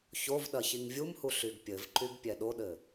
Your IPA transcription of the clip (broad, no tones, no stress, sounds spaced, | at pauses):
ç o v ɗ ɐ ç i ŋ vʲ u m h u ɬ y ɡ pʲ ɘ v ǃ y ɡ pʲ ɛ ɗ o ɗ ɘ